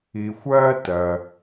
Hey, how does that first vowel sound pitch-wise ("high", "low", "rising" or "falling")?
low